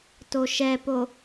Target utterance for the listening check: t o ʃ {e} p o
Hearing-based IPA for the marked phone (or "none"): ɛ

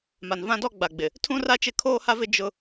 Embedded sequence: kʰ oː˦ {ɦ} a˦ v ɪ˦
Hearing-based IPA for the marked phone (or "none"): h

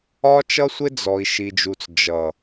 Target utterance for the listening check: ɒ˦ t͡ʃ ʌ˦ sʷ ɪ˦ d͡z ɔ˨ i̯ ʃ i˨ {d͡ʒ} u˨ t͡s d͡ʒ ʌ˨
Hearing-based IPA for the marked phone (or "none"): d͡ʒ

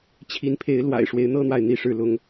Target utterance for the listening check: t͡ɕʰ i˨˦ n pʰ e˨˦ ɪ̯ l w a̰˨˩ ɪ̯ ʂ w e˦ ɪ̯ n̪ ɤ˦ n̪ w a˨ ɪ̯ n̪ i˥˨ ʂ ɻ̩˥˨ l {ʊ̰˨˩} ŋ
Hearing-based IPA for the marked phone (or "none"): ʊ˦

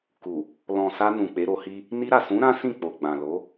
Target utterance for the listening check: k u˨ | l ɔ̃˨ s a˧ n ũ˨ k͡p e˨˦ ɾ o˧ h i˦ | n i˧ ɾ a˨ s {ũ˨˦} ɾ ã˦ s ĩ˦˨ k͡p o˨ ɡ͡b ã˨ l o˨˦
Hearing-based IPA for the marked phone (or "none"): ũ˨˦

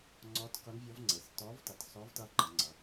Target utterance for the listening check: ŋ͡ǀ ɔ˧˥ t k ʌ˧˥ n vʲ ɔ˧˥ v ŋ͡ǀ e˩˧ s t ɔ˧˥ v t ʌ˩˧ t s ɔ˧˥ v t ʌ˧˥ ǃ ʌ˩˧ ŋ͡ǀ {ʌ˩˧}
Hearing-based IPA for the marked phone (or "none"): ʌ˩˧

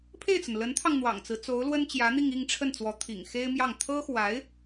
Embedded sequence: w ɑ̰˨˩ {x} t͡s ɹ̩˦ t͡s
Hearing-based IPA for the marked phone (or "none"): ŋ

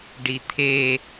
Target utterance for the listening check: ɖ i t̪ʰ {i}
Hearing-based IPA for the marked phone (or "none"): e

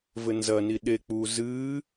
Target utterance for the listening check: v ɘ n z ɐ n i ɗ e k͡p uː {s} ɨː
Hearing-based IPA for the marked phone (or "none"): z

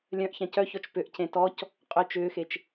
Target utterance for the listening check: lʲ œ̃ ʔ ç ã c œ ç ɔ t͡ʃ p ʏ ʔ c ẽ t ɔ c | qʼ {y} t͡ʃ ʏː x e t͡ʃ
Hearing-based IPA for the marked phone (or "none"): ʏ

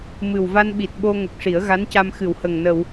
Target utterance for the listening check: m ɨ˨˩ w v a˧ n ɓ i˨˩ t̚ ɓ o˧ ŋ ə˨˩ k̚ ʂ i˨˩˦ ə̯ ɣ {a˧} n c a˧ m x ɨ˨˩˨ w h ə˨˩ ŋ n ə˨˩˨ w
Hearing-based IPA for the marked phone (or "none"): a˧˥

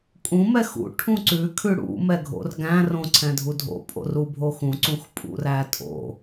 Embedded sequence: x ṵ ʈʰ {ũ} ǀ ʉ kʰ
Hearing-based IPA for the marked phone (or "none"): ũ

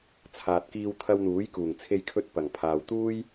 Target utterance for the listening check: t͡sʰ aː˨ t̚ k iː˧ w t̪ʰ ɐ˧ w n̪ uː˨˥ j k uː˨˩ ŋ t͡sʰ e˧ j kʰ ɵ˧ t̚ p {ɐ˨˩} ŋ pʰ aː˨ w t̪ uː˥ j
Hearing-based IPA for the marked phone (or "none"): ɐ˨˩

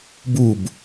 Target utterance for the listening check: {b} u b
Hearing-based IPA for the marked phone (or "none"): b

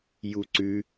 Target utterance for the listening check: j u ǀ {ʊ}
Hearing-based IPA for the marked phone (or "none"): ʉ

